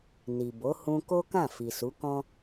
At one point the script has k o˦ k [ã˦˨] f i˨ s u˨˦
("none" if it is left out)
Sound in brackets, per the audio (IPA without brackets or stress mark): ã˦˨